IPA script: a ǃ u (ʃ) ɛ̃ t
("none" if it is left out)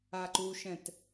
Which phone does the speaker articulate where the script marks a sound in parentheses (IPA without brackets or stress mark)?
ʃ